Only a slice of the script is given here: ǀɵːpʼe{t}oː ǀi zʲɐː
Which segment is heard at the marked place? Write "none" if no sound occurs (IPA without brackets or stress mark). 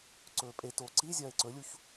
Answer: t